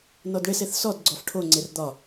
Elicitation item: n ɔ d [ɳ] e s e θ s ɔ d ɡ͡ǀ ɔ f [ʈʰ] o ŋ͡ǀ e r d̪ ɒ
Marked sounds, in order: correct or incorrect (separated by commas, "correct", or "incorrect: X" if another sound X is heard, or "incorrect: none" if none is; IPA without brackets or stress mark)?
correct, correct